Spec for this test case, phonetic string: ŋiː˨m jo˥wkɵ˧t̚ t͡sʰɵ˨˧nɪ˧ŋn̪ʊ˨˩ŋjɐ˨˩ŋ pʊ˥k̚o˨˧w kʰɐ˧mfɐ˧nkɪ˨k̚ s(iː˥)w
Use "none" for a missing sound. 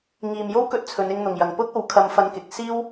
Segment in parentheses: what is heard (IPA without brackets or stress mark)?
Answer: iː˥